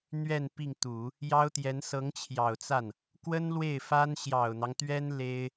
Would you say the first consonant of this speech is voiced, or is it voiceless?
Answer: voiced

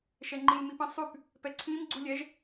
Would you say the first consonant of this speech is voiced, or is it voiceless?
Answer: voiceless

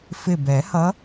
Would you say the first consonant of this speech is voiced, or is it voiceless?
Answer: voiceless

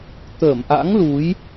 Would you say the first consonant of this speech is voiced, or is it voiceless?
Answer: voiceless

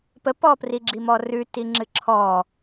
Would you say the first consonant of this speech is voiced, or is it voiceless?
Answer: voiceless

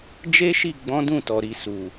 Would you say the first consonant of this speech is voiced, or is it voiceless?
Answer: voiced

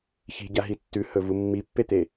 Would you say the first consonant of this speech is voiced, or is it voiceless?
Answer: voiceless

